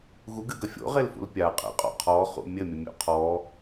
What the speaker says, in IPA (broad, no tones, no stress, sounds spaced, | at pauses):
ɣ u ɡ ɨ ɡ ɐ fʲ o̰ ʁ e l f ṵ l pʲ a qʼ ḛ qʼ ɔ̰ qʰ ɔ χ ṵ mʲ ɘ mʲ ɘ mʲ o̰ qʰ ɔ